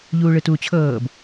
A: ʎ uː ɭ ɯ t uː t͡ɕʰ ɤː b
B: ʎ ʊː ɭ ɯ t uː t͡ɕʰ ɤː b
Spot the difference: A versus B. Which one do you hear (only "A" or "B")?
A